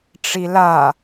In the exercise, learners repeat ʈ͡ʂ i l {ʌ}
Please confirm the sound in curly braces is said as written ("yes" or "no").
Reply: no